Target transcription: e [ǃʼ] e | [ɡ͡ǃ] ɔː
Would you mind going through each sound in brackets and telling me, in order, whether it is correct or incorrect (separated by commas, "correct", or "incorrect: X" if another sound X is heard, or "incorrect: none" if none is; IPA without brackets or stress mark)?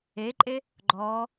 correct, correct